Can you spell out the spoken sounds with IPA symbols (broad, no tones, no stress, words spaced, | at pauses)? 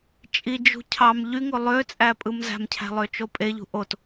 t͡ʃʼid͡ʒṳ cʰɑm ʎyŋo lˠøt͡sʼæ pʼɯmzæ̤mcʰæ̤ lˠøt͡ʃopʼeʎṳ ʔot